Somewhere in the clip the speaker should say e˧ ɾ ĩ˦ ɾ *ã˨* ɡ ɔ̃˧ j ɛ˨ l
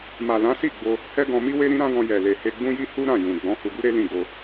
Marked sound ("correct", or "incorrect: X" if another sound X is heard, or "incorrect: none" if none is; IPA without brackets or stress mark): incorrect: ã˦